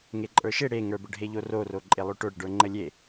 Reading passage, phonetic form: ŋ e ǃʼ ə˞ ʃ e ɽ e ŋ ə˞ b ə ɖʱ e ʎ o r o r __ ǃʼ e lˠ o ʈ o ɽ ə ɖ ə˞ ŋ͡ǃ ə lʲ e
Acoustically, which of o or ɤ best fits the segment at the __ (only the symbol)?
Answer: o